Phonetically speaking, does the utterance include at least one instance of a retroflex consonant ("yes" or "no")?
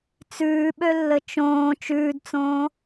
no